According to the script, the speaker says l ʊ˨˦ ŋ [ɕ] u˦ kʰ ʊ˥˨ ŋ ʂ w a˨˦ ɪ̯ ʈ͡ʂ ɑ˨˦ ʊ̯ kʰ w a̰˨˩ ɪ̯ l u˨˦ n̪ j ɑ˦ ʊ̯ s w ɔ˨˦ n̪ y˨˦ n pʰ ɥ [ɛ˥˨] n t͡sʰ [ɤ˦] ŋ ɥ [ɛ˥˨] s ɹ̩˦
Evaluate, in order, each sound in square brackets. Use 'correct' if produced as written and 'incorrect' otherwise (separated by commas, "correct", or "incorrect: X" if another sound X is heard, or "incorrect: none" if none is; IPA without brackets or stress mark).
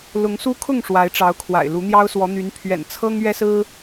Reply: incorrect: s, incorrect: ɛ̰˨˩, correct, incorrect: ɛ˦